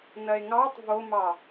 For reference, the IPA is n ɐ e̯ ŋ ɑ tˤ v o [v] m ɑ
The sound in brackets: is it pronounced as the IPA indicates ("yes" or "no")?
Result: no